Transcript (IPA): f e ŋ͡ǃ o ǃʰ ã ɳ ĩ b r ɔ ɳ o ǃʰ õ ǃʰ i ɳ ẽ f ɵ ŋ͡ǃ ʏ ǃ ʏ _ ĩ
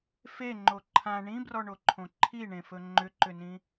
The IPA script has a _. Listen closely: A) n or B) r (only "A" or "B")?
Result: A